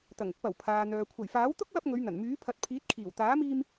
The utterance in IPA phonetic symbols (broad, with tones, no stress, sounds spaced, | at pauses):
t̪ ɐ˨˩ ŋ ʊ˧ k̚ p ɐ˨˩ w pʰ aː˨ n̪ œː˨ kʷʰ ɐ˨˩ j f aː˨˥ w t̪ ʊ˥ k̚ w ɐ˧ p̚ ŋ ɵ˨˧ ɥ n̪ ɐ˨˩ n m yː˨˥ pʰ ɐ˨ t̚ pʰ iː˨˥ t̚ kʰ iː˨˩ w t̪ aː˨˥ m iː˧ m